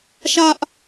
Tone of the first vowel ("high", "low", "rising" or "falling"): high